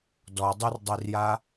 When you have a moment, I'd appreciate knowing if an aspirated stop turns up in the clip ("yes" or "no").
no